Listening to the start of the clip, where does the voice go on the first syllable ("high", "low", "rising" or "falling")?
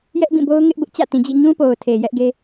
high